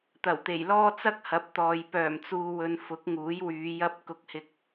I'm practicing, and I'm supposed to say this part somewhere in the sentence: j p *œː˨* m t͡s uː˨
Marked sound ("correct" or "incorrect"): incorrect